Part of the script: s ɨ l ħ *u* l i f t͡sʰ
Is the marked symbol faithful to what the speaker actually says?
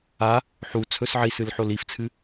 no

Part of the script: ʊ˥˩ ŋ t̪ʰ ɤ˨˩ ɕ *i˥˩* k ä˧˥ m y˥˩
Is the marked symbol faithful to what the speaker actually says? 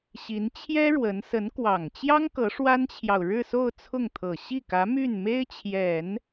yes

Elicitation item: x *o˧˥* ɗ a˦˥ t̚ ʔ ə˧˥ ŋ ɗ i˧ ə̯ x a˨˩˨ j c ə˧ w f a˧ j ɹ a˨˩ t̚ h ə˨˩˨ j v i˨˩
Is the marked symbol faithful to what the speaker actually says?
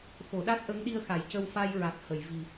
no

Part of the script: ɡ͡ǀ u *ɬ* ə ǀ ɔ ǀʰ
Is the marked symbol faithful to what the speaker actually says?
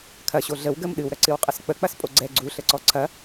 yes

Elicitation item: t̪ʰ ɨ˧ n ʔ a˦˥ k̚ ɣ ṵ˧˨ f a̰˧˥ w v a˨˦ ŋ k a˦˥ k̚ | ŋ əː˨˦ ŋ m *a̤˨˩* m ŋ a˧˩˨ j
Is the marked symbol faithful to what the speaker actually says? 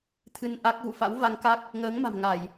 yes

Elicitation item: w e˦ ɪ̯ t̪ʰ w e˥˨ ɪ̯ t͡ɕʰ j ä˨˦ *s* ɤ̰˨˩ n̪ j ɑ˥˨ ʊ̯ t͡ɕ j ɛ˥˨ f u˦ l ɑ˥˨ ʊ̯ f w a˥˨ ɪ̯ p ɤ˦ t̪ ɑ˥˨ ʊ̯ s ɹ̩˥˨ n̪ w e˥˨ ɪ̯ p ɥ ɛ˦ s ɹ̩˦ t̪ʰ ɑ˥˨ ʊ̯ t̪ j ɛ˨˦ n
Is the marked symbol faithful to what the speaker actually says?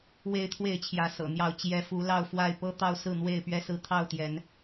yes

